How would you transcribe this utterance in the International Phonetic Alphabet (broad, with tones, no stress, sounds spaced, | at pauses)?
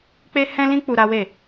k͡p e˦ h ɛ̃˦ l ĩ˦ k͡p u˧ ɾ a˦ w e˦˨